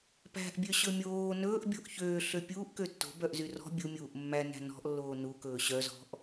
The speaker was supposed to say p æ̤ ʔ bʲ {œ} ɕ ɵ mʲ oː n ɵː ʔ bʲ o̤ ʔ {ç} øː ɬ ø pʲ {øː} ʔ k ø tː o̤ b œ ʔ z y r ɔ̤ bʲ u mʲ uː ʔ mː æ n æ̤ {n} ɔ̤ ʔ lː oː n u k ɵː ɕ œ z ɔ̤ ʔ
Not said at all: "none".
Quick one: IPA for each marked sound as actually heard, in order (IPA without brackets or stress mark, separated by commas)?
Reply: ø, ç, uː, n